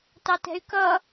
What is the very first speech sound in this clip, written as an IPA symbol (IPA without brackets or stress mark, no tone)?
t